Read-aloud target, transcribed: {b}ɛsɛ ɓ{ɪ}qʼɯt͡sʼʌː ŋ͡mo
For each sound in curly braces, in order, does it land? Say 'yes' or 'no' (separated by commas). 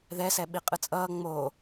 no, no